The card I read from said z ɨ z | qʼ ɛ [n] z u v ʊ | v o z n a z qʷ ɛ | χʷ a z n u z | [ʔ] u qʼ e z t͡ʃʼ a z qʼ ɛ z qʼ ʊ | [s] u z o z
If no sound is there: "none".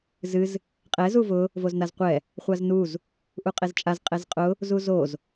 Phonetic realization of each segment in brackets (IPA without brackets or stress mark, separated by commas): none, ʔ, z